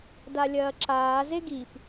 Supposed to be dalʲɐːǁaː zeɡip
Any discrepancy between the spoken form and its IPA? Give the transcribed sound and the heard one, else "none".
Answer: none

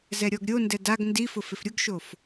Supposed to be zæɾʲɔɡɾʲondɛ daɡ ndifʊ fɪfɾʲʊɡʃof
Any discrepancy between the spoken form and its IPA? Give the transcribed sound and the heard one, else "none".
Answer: æ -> ɛ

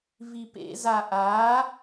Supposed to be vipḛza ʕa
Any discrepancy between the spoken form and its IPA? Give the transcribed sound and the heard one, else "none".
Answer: ʕ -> ʔ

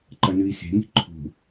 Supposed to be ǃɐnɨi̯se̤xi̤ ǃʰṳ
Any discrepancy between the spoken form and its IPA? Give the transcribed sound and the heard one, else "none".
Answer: x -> ŋ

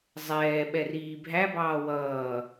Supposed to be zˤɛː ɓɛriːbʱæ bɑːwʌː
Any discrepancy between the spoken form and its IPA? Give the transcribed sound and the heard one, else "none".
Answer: none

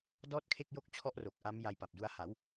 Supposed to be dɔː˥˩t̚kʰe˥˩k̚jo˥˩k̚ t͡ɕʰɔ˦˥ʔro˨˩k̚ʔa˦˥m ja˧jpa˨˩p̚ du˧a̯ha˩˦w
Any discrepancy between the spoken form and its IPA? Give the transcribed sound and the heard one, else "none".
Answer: none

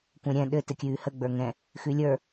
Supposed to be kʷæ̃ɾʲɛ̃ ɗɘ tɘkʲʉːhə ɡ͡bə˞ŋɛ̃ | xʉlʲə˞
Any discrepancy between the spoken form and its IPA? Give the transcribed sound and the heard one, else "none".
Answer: æ̃ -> ɛ̃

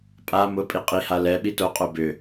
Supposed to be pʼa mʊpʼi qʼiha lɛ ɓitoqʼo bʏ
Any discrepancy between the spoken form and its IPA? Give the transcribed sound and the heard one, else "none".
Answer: none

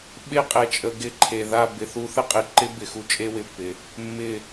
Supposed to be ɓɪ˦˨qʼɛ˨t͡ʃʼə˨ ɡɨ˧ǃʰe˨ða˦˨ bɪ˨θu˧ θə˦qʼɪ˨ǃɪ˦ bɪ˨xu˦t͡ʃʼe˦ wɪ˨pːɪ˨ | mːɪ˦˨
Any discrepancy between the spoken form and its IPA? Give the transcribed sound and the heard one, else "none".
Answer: ɨ˧ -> ɪ˧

